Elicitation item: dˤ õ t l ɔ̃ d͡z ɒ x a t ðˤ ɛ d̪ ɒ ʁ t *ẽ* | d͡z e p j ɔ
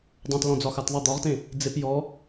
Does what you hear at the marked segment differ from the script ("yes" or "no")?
no